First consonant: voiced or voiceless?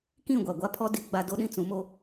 voiceless